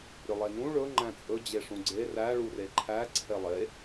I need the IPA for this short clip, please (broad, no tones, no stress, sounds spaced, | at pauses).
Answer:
ɾʲ ɵ lˠ e n ũ ɭ ɵ ŋ͡ǃ æ̃ t͡sʼ ɵ d͡ʑ e ʂ ũ ɡ͡ǀ e r æ ɭ u r e ǃʰ æ ǀʰ e lˠ e